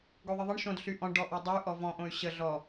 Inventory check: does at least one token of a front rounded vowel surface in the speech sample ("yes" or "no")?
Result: yes